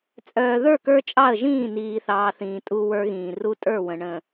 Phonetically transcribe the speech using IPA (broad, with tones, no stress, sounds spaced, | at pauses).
t͡sʼ œː˨ ð ə˞˦˨ k ə˞˦ t͡ʃʼ ɑ˦˨ ə̯ ʒ ĩː˦˨ n iː˨ θ ɑː˨ θ ĩː˨ tʼ u˦ w ə˞˦ ɣ ĩː˨ r u˦ tʼ ə˞˦˨ w ə̃˨ ɳ ə̃˨